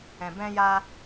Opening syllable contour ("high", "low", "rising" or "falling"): low